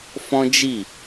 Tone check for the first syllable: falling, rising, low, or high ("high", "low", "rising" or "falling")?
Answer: high